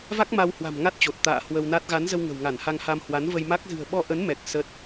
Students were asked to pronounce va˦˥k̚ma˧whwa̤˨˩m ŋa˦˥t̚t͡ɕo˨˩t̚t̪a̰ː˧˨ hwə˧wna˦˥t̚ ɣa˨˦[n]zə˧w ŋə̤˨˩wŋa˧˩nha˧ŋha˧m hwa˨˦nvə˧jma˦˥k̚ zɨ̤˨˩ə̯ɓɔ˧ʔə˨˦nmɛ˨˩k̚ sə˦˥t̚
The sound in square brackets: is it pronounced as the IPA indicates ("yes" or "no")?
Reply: yes